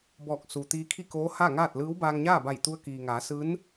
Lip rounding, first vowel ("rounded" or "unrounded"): rounded